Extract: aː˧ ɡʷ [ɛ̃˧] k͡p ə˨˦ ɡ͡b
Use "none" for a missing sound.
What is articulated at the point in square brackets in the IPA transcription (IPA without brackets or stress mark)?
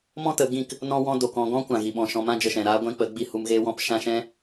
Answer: ɛ̃˧